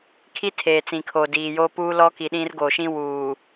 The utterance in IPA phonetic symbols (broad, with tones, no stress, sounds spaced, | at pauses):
kʰ i˦ tʰ eː˨ t͡s ĩ˨ kʰ oː˨ d iː˨ j oː˦ p uː˦ l ɔ˦ k i˨ ɗ ĩ˦ r ɡ o˨ ʃ ĩ˦ w uː˨